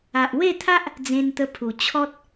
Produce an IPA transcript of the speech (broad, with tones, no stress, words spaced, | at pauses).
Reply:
a˨ʔwe˥˧t̪ʰa˦ʔ | d͡zẽ˧nt̪ə˧pʰu˨˩ t͡ɕʰɔ˦t̚